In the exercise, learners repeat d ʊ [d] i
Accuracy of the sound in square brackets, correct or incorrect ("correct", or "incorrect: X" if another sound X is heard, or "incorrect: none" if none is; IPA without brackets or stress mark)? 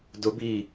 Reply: incorrect: b